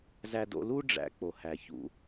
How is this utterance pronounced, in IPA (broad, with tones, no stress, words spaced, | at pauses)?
zæ˧do̰˧lu˦ ɖ͡ʐæ̰˧k͡po˨ hæ˨çṵ˧